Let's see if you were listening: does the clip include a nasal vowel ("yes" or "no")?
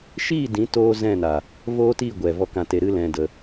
yes